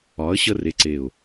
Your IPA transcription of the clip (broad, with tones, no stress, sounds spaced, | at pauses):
ɒ˨˦ ə̯ ɕ ə˦ r e˦ ǀ e˦˨ ʊ̯